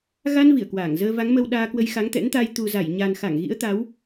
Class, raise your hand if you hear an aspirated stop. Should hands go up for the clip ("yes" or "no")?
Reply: no